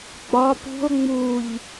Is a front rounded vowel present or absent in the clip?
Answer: absent